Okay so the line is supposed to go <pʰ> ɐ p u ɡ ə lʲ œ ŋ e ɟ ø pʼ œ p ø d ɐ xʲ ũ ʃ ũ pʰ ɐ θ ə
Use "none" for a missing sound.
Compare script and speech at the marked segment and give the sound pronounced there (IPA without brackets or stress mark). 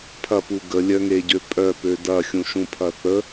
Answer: pʰ